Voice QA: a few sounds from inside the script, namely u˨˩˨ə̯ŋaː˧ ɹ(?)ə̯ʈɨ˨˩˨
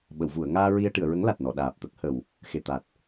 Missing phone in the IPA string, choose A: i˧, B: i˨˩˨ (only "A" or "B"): A